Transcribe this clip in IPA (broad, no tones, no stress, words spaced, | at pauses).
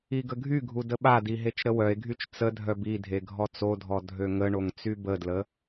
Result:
iɡəɡʱyɡʱu dəɓadi ɦet͡ʃɾəwœe̯ɡʱyt͡ʃ t͡sədʱœb idʱe ɡʱɔt͡sodʱɔ dʱøŋəɳoŋ t͡sybədlə